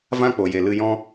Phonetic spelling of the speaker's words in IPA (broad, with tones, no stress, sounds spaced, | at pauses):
v ã˦ k͡p o˨ j e˨ l ɨ˧ j ɔ̃˦